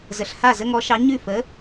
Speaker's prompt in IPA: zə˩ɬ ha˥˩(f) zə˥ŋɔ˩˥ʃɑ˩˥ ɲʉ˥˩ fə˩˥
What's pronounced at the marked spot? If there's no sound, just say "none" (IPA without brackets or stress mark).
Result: none